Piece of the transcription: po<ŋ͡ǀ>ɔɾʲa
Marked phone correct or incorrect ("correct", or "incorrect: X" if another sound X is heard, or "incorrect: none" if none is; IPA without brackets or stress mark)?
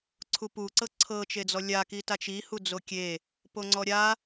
correct